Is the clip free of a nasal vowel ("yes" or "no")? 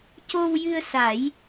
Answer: yes